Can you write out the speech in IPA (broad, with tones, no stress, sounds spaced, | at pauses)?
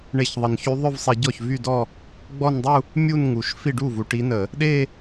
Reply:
ɳ e˧˩˧ ç ðˤ ə˨˩ n ç y˧˥ ðˤ œ˥˧ v sˤ i˧˩˧ ɟ ɔ˥˩ ç v y˥˧ d ɔ˥˧ | ɡ͡b ɔ˥˧ n dˤ u˥˧ | mʲ u˥˧ n ŋ u˨˩ ʃ f i˥˩ ɖ u˥˩ v u˨˩ ʈ i˧˥ n ə˧˩˧ | ɗ e˥˧